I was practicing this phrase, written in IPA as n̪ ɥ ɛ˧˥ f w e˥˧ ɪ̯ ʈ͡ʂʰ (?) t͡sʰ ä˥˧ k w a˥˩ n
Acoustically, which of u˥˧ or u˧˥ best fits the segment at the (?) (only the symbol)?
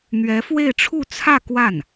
u˥˧